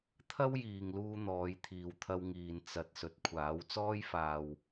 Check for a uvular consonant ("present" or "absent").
absent